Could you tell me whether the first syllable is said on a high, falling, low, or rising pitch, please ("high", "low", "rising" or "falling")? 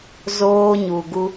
high